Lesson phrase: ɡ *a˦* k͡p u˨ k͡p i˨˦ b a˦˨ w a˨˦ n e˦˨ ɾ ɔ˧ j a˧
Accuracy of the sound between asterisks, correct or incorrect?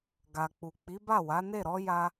incorrect